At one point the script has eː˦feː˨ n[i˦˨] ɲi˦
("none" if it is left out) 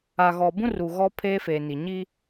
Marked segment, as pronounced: i˨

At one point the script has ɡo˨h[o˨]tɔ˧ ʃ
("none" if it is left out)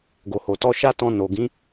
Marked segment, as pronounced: o˨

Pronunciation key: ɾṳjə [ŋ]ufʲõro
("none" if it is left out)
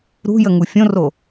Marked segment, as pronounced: ŋ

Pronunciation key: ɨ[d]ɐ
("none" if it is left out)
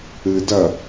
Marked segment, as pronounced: d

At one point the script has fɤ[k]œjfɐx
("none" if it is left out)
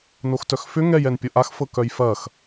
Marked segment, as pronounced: k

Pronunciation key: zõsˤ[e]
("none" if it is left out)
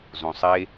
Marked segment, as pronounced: e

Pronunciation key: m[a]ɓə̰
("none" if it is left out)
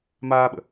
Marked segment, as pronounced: aː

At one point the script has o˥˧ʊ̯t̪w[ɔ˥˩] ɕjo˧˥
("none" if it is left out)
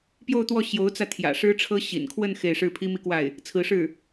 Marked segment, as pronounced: ɔ˥˩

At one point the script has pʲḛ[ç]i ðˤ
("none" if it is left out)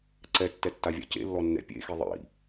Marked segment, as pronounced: x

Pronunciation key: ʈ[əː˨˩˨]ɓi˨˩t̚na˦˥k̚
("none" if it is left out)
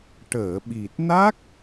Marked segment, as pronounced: əː˨˩˨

